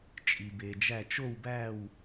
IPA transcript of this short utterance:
t͡ʃʼ i˩ b e˩ d͡ʒ æ˧˩ t͡ʃ o˥˨ w b æ˥˨ w

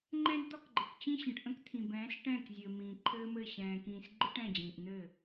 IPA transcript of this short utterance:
ŋ͡ǃ ɛ̃˦ d d̪ ɒ˦ k ɡ͡ǃ ɘ˨ k t͡ɕ ĩ˦ ɕ ə̃˨ ʈ ʔ ə̃˦ k t̪ʰ ĩ˨ b ɛ̃ː˨˦ s ʈ ɛ̃ː˦˨ k zʲ ɘː˨ m ĩː˨ ǃʰ ɘː˦ m ɘ˦˨ ɕ ɛ̃ː˨ k ĩː˨ s ɡ͡ǃ ɨ˦ ʈ ɛ̃˦˨ d͡ʑ ĩː˨ ʔ n̪ ɘː˦˨

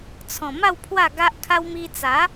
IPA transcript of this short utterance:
t͡sʰ ɔ̃˨˩ m a˥˧ w pʰ w a˥˧ ɡ a˦ ʔ kʰ a˦ w m i˧ t͡s a˨˦

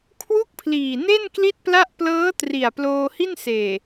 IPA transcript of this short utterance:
kʰ w u˥˩ k̚ pʰ l iː˨˩ n e˥˩ n k l i˥˩ t̚ p l a˥˩ ʔ p l ɤː˦˥ t r i˨˩ a̯ p l oː˧ h i˥˩ n s eː˨˩

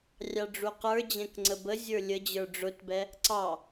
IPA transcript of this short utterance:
rʲ ɑ ɖ͡ʐ u q ə˞ d͡ʑ ɛ̃ k ŋ͡ǀ ə b ə zʲ ə˞ lʲ ə d͡ʑ ə˞ ɖ͡ʐ ʊ t b ɛ | ǀ ɑ

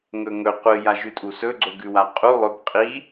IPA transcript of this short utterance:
ŋ ɵ ŋ ɵ qʷ ɨ j a ʒ ʉ tʼ u s ɵ ɡ͡ǀ o ɡ ʉ w a qʼ u lˠ ɵ b qʼ i

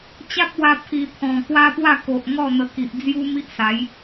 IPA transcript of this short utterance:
t͡ɕ a˦ p̚ w a˧ pʰ i˨˩ t̪ʰ ɔ̃˨˩ k w a˦ p w a˥˧ k o˨ ʔ ŋ ɔ˥˧ n̪ ə˧ k i˨ ʔ d͡z j u˦ m i˦ ʔ s a˨˦ j

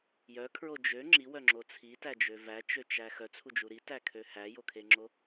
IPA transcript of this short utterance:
j œ kʰ ɹ o d͡ʒ ø ŋ͡ǁ i w œ ŋ͡ǁ o t͡sʰ i t æ d͡ʒ ø v æ t͡ʃ ø t͡ʃ æ x œ t͡sʰ u d͡ʒ u ɾ i t æ kʰ ø h æ j o kʰ e ŋ͡ǁ o

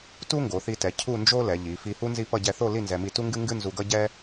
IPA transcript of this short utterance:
t u˥ ŋ ɡ o˩˧ θ i˧ t ɛ˩˧ cʰ u˥˧ n d͡ʒ o˥ l ɛ˩˧ ʎ i˩˧ f i˧ h u˥ n z i˥˧ p ʌ˥˧ ɟ ɛ˧ θ o˥˧ l i˥˧ n z ɛ˧ m i˥˧ t u˥ ŋ ɡ ɨ˥ ŋ ɡ ɨ˥ n z u˧ ɡ ʌ˥ ɟ ɛ˥

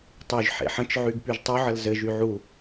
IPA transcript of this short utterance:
tˤ y ʒ ħ ḛ ħ ə̃ t͡ʃ ʕ y ɡ p y ʒ tˤ u ʕ ə l z ɘ ʒ y ʕ u

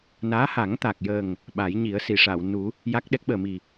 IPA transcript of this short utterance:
n aː˧˥ h a˨˩˦ ŋ t̪ a˨˩ k̚ j əː˨˩ ŋ | ɓ aː˨˩˦ j ɲ i˨˩˦ ə̯ s i˨˩˨ ʂ a˨˩˨ w n u˨˩˦ | j a˦˥ k̚ ɗ ɛ˦˥ k̚ ɓ əː˨˩ m i˨˩

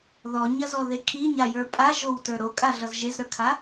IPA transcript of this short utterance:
ð ɔ ɲ ɐ z ɔ ð e kʰ i ɲ a j ə˞ pʼ a ʒ o w t ə˞ ɾ o kʼ a ɮ ʌ z ʒ e z ɾ ə˞ kʰ a

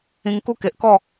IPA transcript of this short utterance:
ĩ˧ ŋ k u˦ k e˨ ʔ k ɔ˥˧

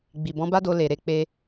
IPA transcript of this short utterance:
ɡ͡b i˨ b ɔ̃˨˦ b a˦ d o˧ l e˨ ɾ e˨˦ k͡p e˧

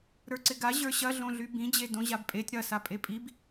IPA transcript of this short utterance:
ɾ ə˞ ǀ ɪ ɡ a ʑ ə˞ ɕ ɐ ɮ õ ɮ y b ĩ d͡ʑ e d õ ʑ a b pʼ e tʲ ɾ ɐ s a pʼ e pʼ i b

